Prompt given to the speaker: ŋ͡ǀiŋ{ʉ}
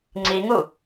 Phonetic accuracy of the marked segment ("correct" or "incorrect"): incorrect